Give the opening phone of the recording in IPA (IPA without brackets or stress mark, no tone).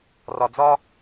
r